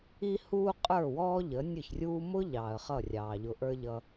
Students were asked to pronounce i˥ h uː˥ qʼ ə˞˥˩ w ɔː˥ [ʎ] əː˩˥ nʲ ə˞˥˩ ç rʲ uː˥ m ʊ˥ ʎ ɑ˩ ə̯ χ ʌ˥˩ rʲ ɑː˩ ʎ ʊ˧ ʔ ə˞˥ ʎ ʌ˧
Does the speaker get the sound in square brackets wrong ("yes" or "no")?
no